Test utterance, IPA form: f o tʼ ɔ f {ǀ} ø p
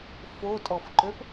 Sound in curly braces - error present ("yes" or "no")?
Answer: yes